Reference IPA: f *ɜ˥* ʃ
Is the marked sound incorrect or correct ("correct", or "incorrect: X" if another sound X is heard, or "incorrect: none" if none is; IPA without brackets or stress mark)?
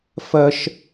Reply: correct